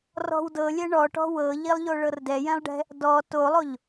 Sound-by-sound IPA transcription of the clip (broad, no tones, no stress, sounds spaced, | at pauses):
r ɔ̤ w d ɤ lʲ ɛ ɳ ɔ ʈ ɔ̤ w ɤ ʎ i lˠ ʎ o ɭ ɤ r d ɛ j ɛ̃ lˠ ɖ ɛ̤ | d ɔ t o lˠ o ʎ